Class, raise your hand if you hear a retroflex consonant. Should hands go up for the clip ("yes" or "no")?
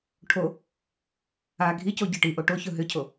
yes